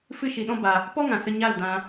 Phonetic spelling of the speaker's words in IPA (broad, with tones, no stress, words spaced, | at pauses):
fɨ˦ʃi˧ɗɔ̃˦ba˧ | pɔ˦ŋã˨sə˧ ɲa˦˨ldã˧